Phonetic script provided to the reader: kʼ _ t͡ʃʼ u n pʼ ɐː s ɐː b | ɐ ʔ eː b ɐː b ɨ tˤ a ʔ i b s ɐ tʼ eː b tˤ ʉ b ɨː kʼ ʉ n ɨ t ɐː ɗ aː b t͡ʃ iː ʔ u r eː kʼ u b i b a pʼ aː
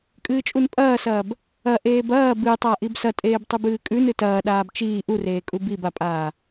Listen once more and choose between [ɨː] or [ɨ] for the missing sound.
ɨː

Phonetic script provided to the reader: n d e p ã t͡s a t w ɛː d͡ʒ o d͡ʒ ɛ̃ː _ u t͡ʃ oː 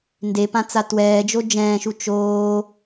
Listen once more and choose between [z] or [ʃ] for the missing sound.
ʃ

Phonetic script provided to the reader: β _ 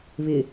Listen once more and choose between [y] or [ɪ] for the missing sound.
ɪ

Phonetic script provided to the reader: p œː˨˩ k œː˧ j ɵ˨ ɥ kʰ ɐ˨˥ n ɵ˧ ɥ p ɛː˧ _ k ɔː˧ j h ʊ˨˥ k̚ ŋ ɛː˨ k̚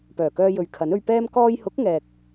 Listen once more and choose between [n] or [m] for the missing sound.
m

